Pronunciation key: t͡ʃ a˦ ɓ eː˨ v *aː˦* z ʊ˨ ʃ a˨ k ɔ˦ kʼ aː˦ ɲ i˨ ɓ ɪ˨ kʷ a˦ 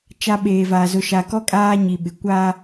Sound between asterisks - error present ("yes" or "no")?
yes